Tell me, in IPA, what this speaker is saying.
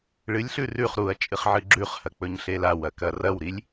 ɭ ɨ lʲ ɬ ʉ r ʉ χ ɾ u ɐ̯ t͡ʃʼ ɨ χ ʕ ɨ ɡ͡ǁ ʉ χ h ɐ k͡p ɵ ɲ ɬ e l a w ɐ k ɐ r ɐ w ɾ i lʲ

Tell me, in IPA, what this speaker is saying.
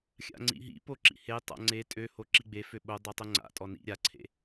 xʲ a̰ ŋ͡ǀ ḭ ɦ ḭ p o ǁ ḭ h e tˤ a̰ ŋ͡ǀ e tʼ ø h o ǁ i ɡ͡b e f ø ɓ o dˤ o tˤ o ŋ͡ǀ a̰ tʼ ɔ n ḭ ɾʲ a ǀʰ ḛ

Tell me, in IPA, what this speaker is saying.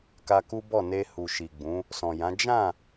k a˧ k u˦ b ɔ˦˨ n e˧ h u˨ ʃ i˨ ɡ͡b ũ˨˦ | s ɔ̃˨ j ã˨˦ d͡ʒ ã˦˨

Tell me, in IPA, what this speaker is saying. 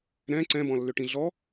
ɾ ɛ̃ ǀ ɛ̃ b ɔ̃ lː ʏ ʈ ĩ ɮ ɔ

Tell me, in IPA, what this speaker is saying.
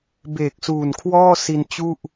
b eː˨˩ k̚ s uː˨˩ n kʰ w ɔː˥˩ s i˧ n t͡ɕ u˥˩ ʔ

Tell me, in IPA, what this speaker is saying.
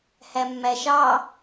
h æ mː æ ʃ ɑ

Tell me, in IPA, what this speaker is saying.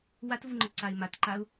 w a t v u ŋ͡ǃ ə ǀ a ɪ̯ m a t ǃ a ʊ̯

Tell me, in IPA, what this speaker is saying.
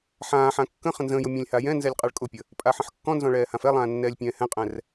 ħ ãː ħ ã kː ə̃ χ ə̃ n z ə̃ː j ʊ mʲ ɔ̃ lʲ h a j ɛ̃ n z ɛ lʲ qʼ a ɭ kʼ ʊ pʲ ə | pʼ a ħ ə̃ ħ kː ɔ̃ n z ɔ̃ ɭ ɛː h ã f ɛ lˠ ãː nː ɛː lʲ pʲ ɛ̃ː h ɛ̃ qʼ ɛ̃ r

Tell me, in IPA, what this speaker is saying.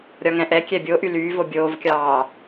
ɾʲ ɒ ŋ ɛ̃ ʔ ɛ kʲ ɛ bʲ o ʔ y l yː v o bʲ oː v kʲ ɑː

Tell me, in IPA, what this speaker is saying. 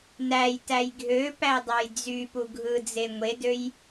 n æ j t æ j ɡʱ ø p æ dˤ ɑ j d͡z y p u ɡʱ ɯ d͡z e ŋʷ e d ø j

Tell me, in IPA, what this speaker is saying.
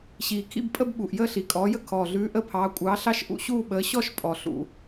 ɕ iː˨˩ kʰ ḭ˥˧ b pʼ ə˥˧ b ɓ u˨˩ ʔ j əː˥˧ ɬ i˨˩ kʼ ɔː˨˥ j ə˥˧ kʰ ɔː˨˩ ɮ ʉː˨˥ ʔ ə˥˧ pʰ ɑː˨˥ kʷʼ ɑː˨˥ ɬ ɑ˥˧ ʃ ʔ ṵ˥˧ ɕ uː˥˧ ɓ əː˨˥ ɕ ɔ˥˧ ʃ pʼ ɔ˨˩ ɬ ṵ˨˩

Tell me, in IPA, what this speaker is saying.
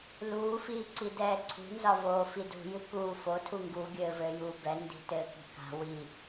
l uː f iː ǀ i d ɛː ǀʰ ṳ n z ɒ v oː f i d ṳ j ɨ k uː f o tʰ u ŋ ɡ u ɡʲ ɘː v ɘː j uː b ɛ n d i̤ t ɘː k i̤ k a̤ w i

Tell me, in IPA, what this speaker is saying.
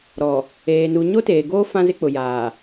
ɾ ɔ˨ | eː˨ n u˨ ɲ o˦ t eː˨ ɡ oː˦ f ã˦ z ɪ˦ k͡p ʊ˨ j aː˨

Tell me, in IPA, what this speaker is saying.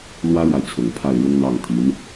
l w ä˥ ɻ w a˨ ɪ̯ t͡sʰ ʊ˨˩ ŋ pʰ a˥˩ ɪ̯ ɻ ʊ˥ ŋ n̪ ɑ˥˩ ŋ t̪ʰ i˧˥ n

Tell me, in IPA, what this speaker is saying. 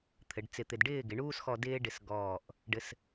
t̪ʰ ɘ˩˧ ɖ t͡s ɪ˧ t̪ ɪ˧ d ɖ ɪː˥˧ ɡ ɪ˩˧ ɳ uː˥ s x ɔ˧ d ɪː˥ ɖ ɪ˧ s ɡ ɔː˧˩ ʔ | ɖ ɘ˥ s

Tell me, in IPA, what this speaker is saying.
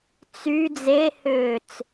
t͡s y d͡z e h ʏː t͡s

